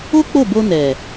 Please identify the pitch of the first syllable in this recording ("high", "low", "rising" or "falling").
high